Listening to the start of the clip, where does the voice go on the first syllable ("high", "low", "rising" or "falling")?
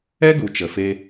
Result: high